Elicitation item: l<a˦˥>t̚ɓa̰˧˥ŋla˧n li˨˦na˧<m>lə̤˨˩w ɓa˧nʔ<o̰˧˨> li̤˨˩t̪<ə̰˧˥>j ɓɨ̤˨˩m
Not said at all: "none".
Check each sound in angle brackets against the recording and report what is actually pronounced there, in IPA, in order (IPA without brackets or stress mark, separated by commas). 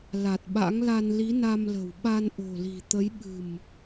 a˨˩, m, o̤˨˩, ə˨˦